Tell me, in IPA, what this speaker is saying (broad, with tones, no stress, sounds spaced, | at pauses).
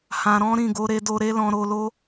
h ã˧ ɾ ɔ̃˦ ɾ ĩ˦˨ ɡ o˨˦ ɾ e˧ d o˧ ɾ e˦ l ɔ̃˧ ɾ o˧ l o˦